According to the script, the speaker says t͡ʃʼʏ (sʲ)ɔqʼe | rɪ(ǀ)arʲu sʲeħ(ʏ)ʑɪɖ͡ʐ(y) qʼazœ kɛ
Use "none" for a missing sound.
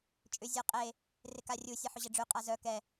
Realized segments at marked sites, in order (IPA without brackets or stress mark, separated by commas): zʲ, k, ʏ, y